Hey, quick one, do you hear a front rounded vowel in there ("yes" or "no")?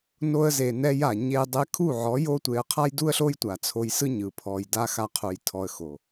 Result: no